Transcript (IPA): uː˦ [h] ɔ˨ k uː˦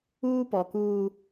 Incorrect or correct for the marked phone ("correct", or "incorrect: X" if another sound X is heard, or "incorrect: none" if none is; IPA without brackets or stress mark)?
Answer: incorrect: p